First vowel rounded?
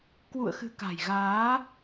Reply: yes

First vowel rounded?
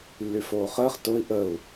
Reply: yes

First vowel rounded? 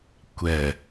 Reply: no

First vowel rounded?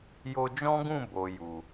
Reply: yes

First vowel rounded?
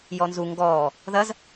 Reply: yes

